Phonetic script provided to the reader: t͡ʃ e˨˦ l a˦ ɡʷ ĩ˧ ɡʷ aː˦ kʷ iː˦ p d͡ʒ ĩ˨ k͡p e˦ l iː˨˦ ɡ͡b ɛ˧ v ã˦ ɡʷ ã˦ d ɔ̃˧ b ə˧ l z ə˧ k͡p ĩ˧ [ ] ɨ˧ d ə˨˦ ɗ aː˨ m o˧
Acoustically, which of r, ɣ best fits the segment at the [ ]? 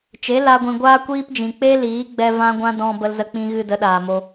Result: ɣ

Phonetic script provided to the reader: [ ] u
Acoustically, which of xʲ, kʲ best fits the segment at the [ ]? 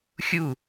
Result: xʲ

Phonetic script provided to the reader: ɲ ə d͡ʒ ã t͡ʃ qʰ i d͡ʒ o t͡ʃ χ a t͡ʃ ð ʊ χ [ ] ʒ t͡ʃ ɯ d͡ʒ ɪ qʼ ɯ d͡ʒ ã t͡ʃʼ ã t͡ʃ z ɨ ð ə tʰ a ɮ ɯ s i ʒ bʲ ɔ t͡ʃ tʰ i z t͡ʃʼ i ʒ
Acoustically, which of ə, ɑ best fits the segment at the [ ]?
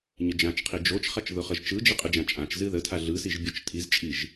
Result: ə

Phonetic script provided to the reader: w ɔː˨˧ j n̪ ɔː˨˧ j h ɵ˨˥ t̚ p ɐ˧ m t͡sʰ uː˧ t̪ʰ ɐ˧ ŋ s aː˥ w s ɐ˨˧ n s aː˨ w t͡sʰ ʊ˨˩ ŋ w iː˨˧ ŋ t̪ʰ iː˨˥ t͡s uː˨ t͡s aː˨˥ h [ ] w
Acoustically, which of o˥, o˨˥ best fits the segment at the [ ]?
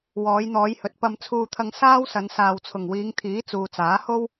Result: o˥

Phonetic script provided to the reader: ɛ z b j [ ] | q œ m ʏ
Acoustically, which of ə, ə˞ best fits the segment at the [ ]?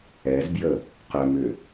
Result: ə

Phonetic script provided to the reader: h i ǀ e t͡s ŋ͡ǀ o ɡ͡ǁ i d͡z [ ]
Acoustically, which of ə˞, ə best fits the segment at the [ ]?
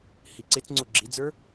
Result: ə˞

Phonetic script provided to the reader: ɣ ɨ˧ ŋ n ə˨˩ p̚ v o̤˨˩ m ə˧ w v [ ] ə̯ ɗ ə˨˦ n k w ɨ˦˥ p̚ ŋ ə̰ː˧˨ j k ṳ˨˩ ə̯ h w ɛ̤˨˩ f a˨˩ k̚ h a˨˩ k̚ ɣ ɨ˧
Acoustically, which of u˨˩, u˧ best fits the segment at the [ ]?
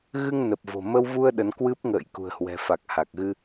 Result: u˧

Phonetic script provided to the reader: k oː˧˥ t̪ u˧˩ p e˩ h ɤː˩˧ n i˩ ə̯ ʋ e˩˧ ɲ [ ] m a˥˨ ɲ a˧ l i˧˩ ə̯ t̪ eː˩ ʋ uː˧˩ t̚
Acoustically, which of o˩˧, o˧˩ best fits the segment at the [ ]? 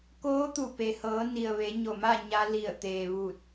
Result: o˧˩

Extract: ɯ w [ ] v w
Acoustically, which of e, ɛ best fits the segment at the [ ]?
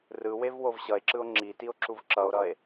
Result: e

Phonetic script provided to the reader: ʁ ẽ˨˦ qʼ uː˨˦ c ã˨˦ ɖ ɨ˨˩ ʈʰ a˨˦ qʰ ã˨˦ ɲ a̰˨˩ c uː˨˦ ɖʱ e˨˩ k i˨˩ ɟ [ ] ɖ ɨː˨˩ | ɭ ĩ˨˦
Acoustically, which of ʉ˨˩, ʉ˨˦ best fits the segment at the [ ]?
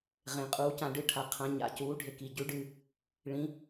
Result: ʉ˨˦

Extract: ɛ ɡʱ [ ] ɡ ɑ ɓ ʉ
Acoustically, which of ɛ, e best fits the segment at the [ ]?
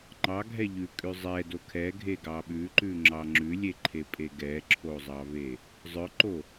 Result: e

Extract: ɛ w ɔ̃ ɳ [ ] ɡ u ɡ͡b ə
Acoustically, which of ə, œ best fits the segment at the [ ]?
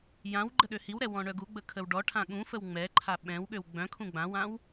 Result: œ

